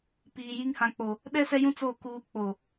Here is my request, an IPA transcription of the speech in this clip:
p iː˨ j i˦ ŋ h ã˨ k͡p o˨ | ɗ ɛ˦ s ɛ˦ j ũ˦ t͡s o˦˨ k uː˦ k͡p o˨

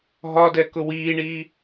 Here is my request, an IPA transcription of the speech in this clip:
ɦ ɒ d ɛ k ʊ w iː ɳ iː

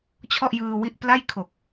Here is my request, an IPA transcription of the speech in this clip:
t͡ɕʰ ɔ˥˩ ʔ j ɯː˧ w i˦˥ ʔ p l a˥˩ j kʰ o˨˩ k̚

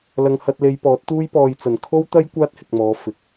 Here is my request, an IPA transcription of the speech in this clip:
l ɐ˧ ŋ h ɐ˧ t̚ l e˧ j p ɔː˨˥ t̚ t̪ uː˥ j p ɔː˧ j t͡s ɐ˨ n kʰ o˥ w t̪ ɐ˥ j kʷ aː˥ t̚ h ɪ˨ k̚ m ɔː˨˧ f ɪ˨ k̚

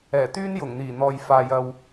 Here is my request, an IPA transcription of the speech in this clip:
ɛː˨˩ t̪ yː˥ n j ʊ˨˩ ŋ n̪ iː˨˩ n̪ ɔː˨ j f aː˨ j ɐ˨ w

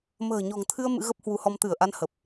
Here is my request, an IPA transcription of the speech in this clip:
m ə̤ː˨˩ ɲ ɔ̤˨˩ ŋ t̪ʰ ɨ˧ ə̯ m ɨ̰˧˥ ɣ ə˦˥ p̚ h w u˨˦ h ɔ˧ m t̪ ɨ˧˩ ə̯ ʔ a˧ n h ə˨˩ p̚

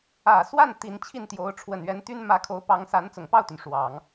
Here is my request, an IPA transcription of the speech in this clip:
ä˨˩ s w a˥˩ n t̪ i˧˥ n t͡ɕʰ i˥˩ n t̪ j o˧˥ ʊ̯ ʈ͡ʂʰ w ə˨˩ n ɥ ɛ˧˥ n t̪ y˥ n m ä˧˥ kʰ o˧˥ ʊ̯ p ɑ˧˥ ŋ s a˧˥ n t͡s ʊ˨˩ ŋ p ɑ˥˩ ʊ̯ t̪ y˩ n ʂ w ɑ˨˩˦ ŋ

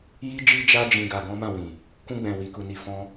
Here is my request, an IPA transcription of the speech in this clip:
j i˦ d͡ʒ i˦ d͡ʒ a˦ d͡ʒ ĩ˧ ɡ a˧ ɡ ɔ̃˦ m ã˦˨ w ĩ˨ | k ũ˧ ɡ͡b ɛ̃˨ w i˨ k u˨ n i˧ f ɔ̃˦

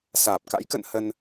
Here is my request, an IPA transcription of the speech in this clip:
s aː˨˩ p̚ k a̰˧˥ j k ə̰˧˨ n h ə˧ n

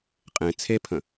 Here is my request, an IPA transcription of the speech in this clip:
qʼ ẽ t͡sʰ e pʰ ə̃

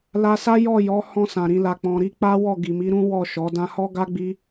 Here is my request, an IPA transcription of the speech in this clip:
l a˧ s a˦ j ɔ˦˨ j ɔ˨˦ h ɔ̃˧ s ã˨ ɾ ĩ˨ l a˨ k͡p ɔ̃˨ ɾ i˨˦ k͡p a˦ w ɔ˦˨ ɡ i˨ m i˨˦ ɾ ũ˦ w ɔ˦˨ ʃ ɔ˨˦ d ã˧ h ɔ˦ ɡ a˦ ɡ͡b i˦

